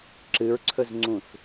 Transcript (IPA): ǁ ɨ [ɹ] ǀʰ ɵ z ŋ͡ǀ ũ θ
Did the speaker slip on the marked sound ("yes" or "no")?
no